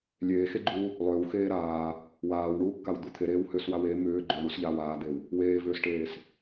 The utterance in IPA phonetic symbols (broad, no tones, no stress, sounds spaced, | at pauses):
lʲ eː x e ɡ͡ǃ uː | lˠ ʏː w x eː ɾ aː | w aː w ɳ uː kː a w d̪ u t̪ʰ e ɾ eː w h ʏː s w a w e m ʏː ɡ͡ǃ ʏː ɳ u s ʎ aː w aː d̪ e w | w eː v ʏː s ʈ eː s